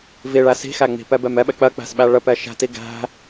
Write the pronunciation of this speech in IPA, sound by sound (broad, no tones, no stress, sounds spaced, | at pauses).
v i ɭ æ s i̤ x æ ŋ͡m i̤ p ɛ b ɛ m ɛ ɓ ɛ k͡p ɜ k͡p æ̤ s ɓ æ ɭ ə p ɛ ʃ æ̤ t i ɡ æ̤